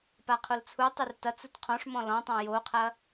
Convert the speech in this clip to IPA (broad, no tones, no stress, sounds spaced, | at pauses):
p a qʰ o l t͡sʰ u tˤ ʉ r t ɐ t͡s u t qʰ ɔ̃ ʂ m ɔ̃ l ɔ̃ tˤ ã j o qʰ ɐ